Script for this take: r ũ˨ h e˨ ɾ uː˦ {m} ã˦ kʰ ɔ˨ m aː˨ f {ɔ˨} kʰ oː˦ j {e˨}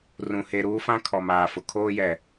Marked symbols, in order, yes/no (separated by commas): no, no, no